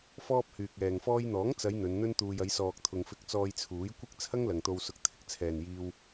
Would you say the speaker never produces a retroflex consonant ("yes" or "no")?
yes